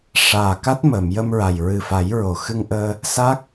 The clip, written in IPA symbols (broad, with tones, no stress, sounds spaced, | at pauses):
ʂ aː˨˩ k a˦˥ t̚ m əː˨˩˨ m j ə˧ m ɹ a˨˩ j ɹ ɨ˨˩ f a˨˩˦ j ɹ o˨˩˨ x ɨ˧ ŋ ʔ əː˧ | s a˦˥ k̚